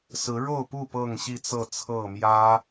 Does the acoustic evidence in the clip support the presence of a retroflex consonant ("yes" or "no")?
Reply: yes